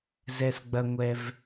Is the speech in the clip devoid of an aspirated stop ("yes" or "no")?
yes